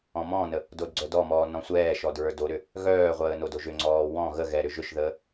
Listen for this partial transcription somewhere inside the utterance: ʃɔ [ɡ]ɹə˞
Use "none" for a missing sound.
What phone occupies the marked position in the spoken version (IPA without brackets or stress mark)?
d